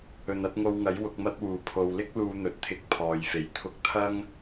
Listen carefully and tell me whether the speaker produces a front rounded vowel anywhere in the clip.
no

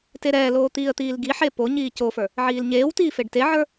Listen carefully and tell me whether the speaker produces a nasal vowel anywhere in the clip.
no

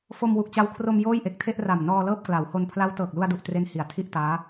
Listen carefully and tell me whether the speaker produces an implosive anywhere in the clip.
no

